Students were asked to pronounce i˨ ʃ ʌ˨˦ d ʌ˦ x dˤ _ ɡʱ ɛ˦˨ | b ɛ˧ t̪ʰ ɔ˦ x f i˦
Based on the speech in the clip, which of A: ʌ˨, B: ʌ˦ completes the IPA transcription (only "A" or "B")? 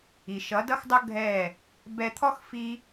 B